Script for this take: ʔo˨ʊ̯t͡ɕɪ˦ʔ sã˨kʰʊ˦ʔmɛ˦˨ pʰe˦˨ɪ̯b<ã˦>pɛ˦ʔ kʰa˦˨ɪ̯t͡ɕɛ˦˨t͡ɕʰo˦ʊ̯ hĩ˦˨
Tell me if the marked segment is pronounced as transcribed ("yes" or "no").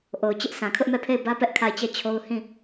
no